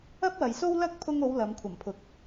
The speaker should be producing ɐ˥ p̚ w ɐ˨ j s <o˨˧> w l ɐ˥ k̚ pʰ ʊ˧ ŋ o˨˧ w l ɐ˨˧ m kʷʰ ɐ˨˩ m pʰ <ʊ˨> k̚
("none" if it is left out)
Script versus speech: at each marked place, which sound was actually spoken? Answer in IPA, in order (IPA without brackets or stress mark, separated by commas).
o˥, ʊ˨